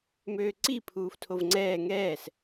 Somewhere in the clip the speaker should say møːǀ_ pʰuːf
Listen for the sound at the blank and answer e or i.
i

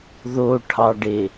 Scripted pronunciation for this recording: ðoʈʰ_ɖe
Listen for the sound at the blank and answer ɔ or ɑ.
ɑ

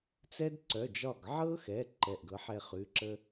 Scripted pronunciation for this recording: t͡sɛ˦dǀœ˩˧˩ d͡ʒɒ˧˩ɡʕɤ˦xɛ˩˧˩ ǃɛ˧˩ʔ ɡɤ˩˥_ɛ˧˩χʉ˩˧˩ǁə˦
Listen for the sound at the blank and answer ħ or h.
ħ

